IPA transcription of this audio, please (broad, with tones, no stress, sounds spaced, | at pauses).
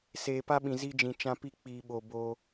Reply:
s eː˨ p a˦ ɓ ĩ˨ z i˦ d͡ʒ ĩ˨ t͡ʃ ã˦ p i˦ k͡p iː˨ ɓ o˨ b o˦